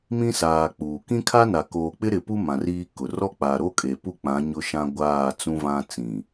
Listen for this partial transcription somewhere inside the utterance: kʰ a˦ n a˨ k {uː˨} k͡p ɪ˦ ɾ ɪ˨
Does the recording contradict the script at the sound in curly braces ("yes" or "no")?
yes